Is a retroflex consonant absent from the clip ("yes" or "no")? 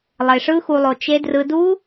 no